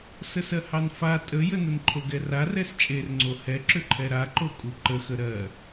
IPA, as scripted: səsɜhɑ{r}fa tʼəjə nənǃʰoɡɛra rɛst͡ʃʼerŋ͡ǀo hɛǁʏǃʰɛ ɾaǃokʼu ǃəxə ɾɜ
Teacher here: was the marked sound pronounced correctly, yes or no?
no